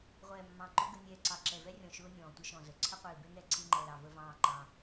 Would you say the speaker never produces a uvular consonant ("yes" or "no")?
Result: no